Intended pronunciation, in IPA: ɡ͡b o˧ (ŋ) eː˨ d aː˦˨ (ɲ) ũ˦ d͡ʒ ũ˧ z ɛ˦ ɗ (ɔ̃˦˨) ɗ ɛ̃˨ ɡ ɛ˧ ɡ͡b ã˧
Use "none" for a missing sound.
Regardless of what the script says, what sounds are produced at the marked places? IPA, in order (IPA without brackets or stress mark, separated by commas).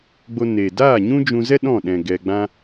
n, ɲ, ɔ̃˦˨